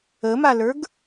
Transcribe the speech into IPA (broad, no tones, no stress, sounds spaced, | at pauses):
ə m a l ə˞ ɡ